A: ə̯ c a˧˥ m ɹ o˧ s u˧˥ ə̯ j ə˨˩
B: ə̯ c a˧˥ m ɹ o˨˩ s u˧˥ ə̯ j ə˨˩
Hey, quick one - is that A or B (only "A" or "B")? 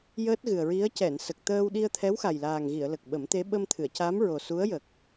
B